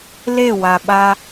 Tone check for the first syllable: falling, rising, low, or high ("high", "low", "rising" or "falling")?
falling